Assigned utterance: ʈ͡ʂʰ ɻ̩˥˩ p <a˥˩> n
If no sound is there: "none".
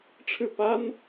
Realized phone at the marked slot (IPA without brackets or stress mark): a˥